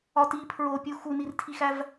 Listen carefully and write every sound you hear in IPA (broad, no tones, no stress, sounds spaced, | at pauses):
ɒ t i pʰ ɹ o pʲ u x u n i r tʰ i x æ v